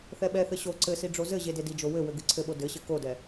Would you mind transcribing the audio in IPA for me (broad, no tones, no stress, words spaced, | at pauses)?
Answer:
θɛɓɛθɘ ɕo ǀɘsi ɖ͡ʐozɘʑe dedid͡ʒo wɘwɘ ɡɨǀʰɘɓo dɘɕɘ kodɛ